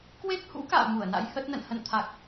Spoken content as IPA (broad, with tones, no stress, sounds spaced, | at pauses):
k w e˦˥ k̚ h ṵ˧˥ k a̰ː˧˨ m u˧˩ ə̯ n a̰˧˥ j h ə˦˥ t̚ n ə̰˧˨ n h ə̰˧˨ n t̪ʰ a˨˩ k̚